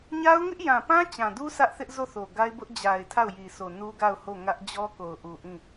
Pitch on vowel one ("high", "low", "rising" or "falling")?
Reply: high